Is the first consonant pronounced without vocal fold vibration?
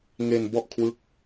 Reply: no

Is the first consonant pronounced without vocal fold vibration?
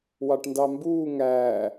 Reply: no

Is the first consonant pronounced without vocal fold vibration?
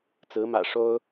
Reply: yes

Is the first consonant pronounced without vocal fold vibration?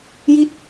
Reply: no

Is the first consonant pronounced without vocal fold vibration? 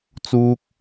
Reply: yes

